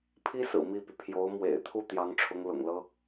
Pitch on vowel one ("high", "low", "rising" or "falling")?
high